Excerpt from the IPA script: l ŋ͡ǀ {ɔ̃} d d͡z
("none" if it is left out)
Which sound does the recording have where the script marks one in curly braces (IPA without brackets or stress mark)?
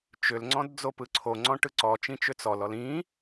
ɔ̃